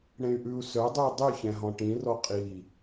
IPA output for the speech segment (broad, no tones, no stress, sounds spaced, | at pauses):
ɽ ẽ y̯ ʔ ʉ u̯ s œ dˤ ʉ i̯ dˤ y ç ɛ̃ ɦ ɔ̃ ʈ ĩ r ɔ qʼ i